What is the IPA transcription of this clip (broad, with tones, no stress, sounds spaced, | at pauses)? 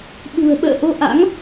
ɓ ṳ˨˩ ə̯ ɓ ə̰ː˧˨ ʔ o˧ ʔ a̰˧˥ ŋ